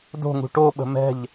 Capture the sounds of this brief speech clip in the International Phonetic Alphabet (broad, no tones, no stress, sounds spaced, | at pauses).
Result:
d o̤ ŋ ṳ ʈ o ɓ ə̤ m ɛ̤ ʎ